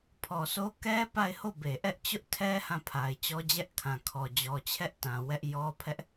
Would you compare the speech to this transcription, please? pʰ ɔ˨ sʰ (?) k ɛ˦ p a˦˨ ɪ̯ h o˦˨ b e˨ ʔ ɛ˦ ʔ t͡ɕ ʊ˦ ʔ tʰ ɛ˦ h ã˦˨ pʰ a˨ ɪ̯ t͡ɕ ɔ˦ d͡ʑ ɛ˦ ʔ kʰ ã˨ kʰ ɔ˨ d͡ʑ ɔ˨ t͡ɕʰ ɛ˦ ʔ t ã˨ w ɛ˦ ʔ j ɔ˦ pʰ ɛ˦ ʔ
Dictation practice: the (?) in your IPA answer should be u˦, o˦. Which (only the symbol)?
o˦